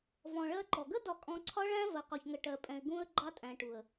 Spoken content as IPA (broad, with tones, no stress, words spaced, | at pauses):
vɔ̃˨ɭɜ˦ǃɔ˨ ɡə˦dɒ˨kʼɔ̃˨ ǀʰɒ˦ɭæ̃˦ vɜ˨qɔ˨çŋə˨ ʈɜ˨pʼɛ̃˨ɪ̯ ɡũ˦ə̯ ɡ͡ǃɑ˦tʼæ̃˨ʈu˨ə̯